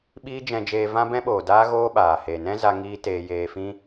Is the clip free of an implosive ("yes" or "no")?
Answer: no